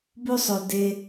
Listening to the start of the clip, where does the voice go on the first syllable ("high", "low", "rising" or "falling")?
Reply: high